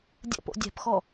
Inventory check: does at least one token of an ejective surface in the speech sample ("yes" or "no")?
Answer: no